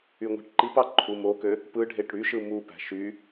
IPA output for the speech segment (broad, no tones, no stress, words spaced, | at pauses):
yŋʷe̤ʈǃipɑ ǃʰumokø | pɯɖʱeʈ ɽyʃɯ mupæ̤ ʃy